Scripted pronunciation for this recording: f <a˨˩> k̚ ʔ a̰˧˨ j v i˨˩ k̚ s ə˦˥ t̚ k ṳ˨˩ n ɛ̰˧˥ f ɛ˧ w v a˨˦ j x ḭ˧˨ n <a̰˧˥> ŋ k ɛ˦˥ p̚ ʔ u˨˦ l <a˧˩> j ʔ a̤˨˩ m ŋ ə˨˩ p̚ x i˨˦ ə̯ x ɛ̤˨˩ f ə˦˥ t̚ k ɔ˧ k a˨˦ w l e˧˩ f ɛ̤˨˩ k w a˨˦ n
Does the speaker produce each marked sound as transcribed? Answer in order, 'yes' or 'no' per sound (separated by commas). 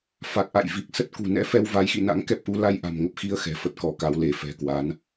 yes, yes, no